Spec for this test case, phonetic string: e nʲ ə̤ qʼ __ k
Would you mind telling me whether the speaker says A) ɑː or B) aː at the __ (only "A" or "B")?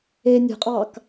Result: A